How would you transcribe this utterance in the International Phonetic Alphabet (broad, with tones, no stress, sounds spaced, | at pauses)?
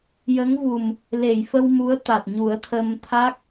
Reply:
j ə˧˥ ŋ v u˨˩ m | l e˨˩˨ j f ə˧ w m u˧˥ ə̯ t̪ a˨˩ t̚ ɲ u˨˩˦ ə̯ t̪ʰ ə˧ m t̪ʰ a˦˥ k̚